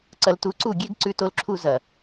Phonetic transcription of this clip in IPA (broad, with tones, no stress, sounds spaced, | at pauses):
ǀ ɐ˧ l t u˧ ǀ u˦˨ ɡʲ e˦ ɡ ǀ ʉ˧ t o˧ l ǁʰ u˧ z ɐ˨